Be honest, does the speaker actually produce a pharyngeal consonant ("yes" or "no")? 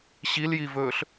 no